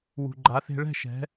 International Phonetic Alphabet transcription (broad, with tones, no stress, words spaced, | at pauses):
wṳ˨ɡ͡ǃa˨˦θe̤˦ ɭɛ̤˦˨ʃɛ̤˨˦